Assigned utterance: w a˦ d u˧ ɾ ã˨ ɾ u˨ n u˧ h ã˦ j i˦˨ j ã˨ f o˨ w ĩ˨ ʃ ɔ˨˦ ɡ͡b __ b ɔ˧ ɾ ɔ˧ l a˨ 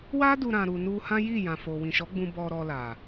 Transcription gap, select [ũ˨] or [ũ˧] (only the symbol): ũ˧